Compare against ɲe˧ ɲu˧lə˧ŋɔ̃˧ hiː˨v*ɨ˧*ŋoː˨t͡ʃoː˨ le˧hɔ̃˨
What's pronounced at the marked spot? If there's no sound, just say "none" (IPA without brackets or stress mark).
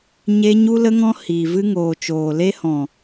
ɨ˧